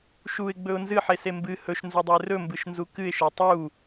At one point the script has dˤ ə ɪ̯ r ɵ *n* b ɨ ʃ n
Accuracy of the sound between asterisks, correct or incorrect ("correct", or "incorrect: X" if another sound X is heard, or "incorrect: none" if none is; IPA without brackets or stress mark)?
incorrect: m